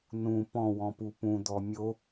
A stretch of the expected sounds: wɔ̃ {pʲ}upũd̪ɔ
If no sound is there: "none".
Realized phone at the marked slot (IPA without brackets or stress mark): p